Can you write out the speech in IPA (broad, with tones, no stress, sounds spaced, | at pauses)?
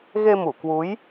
ɣ e˧ m u˧˩ k w u˨˦ j